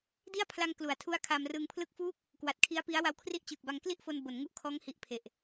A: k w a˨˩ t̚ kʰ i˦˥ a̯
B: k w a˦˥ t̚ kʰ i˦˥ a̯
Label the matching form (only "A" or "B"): A